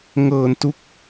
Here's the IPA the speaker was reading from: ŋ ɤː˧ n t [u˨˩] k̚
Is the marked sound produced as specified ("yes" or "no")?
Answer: no